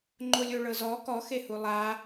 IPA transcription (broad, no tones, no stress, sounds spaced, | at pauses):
ŋ͡ǃ o lʲ o ɭ ɤ z ɔ k ɔ x e h u lˠ a